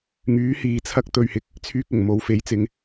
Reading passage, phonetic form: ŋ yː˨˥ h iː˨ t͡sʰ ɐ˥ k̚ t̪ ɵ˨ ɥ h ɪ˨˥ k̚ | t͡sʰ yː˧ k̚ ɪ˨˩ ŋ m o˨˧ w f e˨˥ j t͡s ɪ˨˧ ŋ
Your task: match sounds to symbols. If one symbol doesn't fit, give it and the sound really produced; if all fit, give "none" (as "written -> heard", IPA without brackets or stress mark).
none